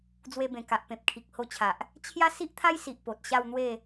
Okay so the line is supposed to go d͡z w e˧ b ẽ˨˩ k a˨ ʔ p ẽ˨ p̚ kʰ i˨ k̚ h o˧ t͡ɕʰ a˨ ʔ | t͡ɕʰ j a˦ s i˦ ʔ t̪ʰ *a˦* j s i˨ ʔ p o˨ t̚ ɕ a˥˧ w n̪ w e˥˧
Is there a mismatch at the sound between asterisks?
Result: no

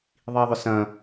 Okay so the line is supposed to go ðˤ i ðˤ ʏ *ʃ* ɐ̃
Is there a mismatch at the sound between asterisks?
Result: yes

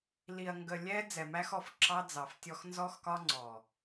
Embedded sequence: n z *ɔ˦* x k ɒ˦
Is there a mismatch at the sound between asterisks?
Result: no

